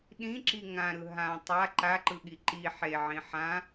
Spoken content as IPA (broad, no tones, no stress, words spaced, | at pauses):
ɗĩǁi ŋãɾɯ ɦã tˤa ǃaǃɯɠi ǃi ħeʕĩ ħã